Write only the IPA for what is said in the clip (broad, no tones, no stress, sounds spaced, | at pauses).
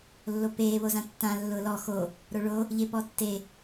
lː o p eː β o z ã tː ã lː ʊː l ɔ x o | ɾ o ɭ o | ʎ e p ɔ tː e